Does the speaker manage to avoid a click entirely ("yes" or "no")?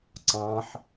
no